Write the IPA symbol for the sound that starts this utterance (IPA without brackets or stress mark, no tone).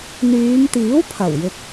n̪